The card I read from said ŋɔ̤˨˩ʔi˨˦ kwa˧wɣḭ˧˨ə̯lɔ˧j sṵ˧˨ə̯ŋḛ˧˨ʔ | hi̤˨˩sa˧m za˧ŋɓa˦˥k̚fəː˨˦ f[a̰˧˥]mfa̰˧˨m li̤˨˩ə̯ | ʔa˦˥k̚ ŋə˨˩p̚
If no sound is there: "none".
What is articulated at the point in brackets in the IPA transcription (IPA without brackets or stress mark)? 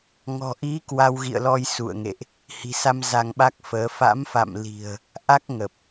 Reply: a̰˧˥